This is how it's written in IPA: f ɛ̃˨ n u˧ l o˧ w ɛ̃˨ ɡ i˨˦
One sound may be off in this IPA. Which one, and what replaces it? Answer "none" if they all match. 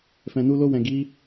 none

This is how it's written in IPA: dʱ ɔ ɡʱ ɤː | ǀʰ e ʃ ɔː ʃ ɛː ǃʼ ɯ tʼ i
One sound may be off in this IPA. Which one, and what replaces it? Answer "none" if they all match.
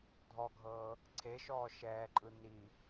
tʼ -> n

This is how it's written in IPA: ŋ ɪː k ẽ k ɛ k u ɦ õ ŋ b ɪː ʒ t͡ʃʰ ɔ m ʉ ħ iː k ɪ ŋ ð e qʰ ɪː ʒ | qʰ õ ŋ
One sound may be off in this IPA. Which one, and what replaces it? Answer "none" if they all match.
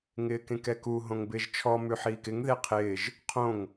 none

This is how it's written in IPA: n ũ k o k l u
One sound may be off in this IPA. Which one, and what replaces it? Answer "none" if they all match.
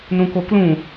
u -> ũ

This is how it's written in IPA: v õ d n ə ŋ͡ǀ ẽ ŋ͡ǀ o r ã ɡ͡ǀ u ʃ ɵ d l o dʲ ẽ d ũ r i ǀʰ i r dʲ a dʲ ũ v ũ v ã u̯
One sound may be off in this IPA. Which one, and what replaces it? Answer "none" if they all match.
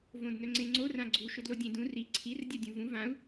ə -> ɵ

